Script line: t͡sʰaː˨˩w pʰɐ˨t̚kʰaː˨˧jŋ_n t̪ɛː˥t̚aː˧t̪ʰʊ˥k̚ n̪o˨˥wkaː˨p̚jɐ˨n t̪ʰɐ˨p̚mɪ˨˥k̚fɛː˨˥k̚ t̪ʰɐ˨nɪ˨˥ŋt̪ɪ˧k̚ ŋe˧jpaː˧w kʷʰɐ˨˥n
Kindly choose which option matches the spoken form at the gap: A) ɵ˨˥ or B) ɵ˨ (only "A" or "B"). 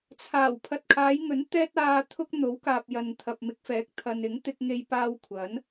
A